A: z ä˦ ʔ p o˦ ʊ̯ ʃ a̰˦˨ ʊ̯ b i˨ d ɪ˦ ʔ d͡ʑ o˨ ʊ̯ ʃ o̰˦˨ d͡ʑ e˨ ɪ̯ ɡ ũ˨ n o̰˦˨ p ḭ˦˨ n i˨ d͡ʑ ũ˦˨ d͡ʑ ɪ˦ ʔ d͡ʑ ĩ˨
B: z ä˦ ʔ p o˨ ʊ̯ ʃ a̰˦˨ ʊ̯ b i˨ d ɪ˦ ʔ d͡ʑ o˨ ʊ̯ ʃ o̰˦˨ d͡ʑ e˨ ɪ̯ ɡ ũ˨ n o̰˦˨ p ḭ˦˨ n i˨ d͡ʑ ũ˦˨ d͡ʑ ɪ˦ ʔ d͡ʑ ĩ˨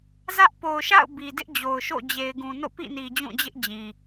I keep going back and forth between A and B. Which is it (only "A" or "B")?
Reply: B